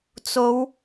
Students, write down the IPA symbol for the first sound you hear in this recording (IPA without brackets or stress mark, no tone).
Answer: t͡s